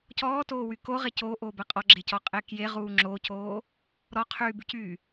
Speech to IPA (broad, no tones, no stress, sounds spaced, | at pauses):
c ɔː t oː w y k o ʁ e c oː ʔ oː b ɛ qʼ ɔ ɡ͡ǁ e c ɔ qʼ e k j e ʁ uː ŋ͡ǁ o c oː | ɾ ɔ qʰ yː b y c yː